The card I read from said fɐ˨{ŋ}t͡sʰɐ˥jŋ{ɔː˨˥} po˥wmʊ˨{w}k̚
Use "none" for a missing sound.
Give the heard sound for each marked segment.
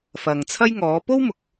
ŋ, ɔː˨˥, none

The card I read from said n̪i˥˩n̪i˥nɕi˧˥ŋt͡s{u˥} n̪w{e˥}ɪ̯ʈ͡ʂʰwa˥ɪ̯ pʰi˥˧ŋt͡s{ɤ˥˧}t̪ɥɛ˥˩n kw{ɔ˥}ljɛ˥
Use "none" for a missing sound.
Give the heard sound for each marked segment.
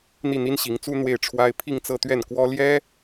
u˥, e˥˩, ɤ˥˧, ɔ˥

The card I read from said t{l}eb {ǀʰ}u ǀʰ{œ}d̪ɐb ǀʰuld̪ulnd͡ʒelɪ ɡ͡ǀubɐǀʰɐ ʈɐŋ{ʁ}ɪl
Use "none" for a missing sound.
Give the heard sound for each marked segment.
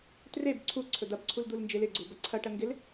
r, ǀʰ, ɵ, ɡ

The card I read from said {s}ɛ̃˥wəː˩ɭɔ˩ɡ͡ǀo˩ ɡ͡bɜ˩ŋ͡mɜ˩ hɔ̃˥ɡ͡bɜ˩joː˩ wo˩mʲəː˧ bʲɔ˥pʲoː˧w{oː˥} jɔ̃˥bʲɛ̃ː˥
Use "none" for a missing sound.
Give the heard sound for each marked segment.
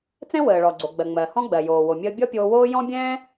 t͡s, oː˥

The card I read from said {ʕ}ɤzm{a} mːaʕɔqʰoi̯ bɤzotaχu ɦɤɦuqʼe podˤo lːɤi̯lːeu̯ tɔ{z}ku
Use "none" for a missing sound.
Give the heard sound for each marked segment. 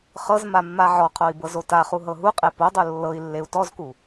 χ, a, z

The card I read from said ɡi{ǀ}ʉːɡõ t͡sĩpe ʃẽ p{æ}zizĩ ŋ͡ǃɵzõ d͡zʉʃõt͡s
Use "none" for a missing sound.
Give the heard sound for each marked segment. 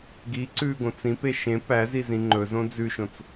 ǀ, æ

